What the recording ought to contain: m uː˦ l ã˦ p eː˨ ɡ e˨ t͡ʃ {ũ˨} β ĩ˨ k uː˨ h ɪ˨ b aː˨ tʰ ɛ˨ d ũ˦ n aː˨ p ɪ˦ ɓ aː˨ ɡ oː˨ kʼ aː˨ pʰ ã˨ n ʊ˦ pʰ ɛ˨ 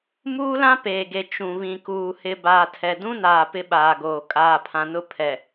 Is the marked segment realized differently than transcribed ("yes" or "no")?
no